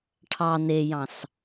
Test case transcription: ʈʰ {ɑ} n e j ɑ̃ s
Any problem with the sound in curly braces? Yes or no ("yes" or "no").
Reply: no